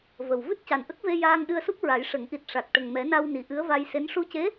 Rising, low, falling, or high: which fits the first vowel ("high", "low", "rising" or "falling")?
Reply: low